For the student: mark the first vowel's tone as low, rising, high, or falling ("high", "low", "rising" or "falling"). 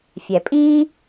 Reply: low